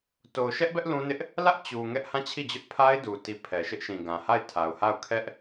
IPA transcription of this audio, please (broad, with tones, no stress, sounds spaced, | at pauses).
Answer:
t o˨ ʊ̯ ʃ ɛ˦ ʔ b ɛ˦ ʔ l ũ˦ n ɪ˦ ʔ | l ä˦ ʔ t͡ɕ u˨ ŋ ɛ˦ ʔ h ã˦˨ t͡ɕʰ i˦˨ d͡ʑ ʊ˦ ʔ pʰ a˦ ɪ̯ d u˨ t i˨ pʰ ɛ˨ ʃ ɪ˦ ʔ ʃ ĩ˨ ɡ ã˨ h a˦˨ ɪ̯ tʰ a˨ ʊ̯ h a˦˨ ʊ̯ kʰ ɛ˦ ʔ